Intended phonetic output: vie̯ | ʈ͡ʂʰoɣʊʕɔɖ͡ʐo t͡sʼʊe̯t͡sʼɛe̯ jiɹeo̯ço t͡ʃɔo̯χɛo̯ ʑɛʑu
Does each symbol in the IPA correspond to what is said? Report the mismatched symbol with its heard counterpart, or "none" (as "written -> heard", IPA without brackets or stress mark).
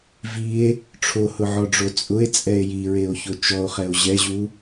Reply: ɣ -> h